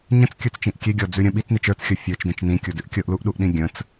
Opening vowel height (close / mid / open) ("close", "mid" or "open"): mid